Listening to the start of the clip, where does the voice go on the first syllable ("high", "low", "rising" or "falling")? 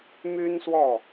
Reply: high